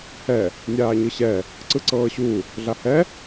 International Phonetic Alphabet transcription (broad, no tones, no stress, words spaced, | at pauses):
hɛ | nʲaːɲɯɕɛ | ǀɯǀɤːɕu | ɮahɛ